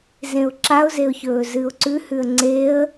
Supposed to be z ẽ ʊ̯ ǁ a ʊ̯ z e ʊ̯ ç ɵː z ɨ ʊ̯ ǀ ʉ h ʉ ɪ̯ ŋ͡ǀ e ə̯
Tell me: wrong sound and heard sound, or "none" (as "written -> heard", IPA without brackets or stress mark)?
ɪ̯ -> ə̯